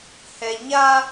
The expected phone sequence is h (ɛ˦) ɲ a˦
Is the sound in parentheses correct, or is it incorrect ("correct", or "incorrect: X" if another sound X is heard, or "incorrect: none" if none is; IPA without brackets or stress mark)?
incorrect: ɛ˨